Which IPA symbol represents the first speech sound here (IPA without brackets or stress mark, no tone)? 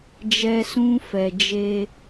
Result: d͡ʒ